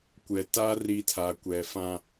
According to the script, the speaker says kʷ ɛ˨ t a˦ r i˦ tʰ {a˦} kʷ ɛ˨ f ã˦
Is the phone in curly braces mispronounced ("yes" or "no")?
yes